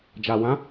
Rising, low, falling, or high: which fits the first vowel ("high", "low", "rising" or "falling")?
low